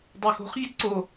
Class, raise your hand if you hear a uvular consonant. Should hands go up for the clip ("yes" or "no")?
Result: yes